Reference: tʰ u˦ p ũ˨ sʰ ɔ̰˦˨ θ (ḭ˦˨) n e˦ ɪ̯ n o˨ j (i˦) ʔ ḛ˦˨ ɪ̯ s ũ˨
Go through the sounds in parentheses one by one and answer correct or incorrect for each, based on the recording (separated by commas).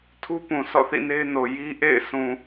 correct, correct